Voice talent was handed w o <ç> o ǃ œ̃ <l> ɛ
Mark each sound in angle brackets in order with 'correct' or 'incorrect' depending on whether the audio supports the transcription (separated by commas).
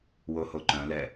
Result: incorrect, correct